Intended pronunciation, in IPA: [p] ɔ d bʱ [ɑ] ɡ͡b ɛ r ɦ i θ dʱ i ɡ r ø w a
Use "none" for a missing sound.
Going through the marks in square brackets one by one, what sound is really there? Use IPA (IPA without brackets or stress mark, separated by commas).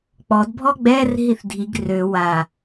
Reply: k͡p, ɔ